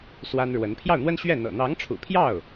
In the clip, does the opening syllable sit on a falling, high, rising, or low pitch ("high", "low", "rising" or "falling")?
high